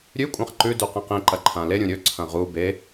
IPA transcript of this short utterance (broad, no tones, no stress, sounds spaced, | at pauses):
ɾʲ ʉ kʷʼ ã χ ǃ ʉ d ʉ q ĩ q ĩ ǃ ɐ ǃʰ ã l e ɾʲ ũ ɾʲ ɵ ǀʰ ɐ̃ ʁ u b e